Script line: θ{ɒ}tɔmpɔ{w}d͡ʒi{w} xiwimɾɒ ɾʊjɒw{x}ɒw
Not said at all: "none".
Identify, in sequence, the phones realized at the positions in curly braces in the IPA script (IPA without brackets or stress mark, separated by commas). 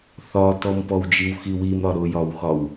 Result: ɒ, w, w, x